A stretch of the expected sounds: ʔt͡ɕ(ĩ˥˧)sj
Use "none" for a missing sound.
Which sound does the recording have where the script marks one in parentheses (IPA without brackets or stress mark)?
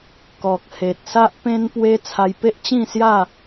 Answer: ĩ˥˧